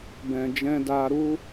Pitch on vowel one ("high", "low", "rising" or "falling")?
low